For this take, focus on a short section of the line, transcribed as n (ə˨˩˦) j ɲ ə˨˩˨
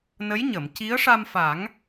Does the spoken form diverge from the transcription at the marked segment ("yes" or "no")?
yes